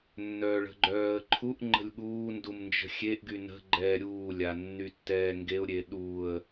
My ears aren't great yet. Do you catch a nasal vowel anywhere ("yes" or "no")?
no